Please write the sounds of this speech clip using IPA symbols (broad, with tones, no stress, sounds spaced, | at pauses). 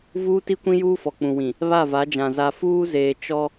v uː˦ t i˦ kʷ ĩ˦ j uː˦ f ɔ˨ k͡p ũ˨ w ĩ˨ | β a˦˨ v a˨˦ d͡ʒ ã˨ z a˨ f uː˦ z eː˨ t͡ʃ ɔ˦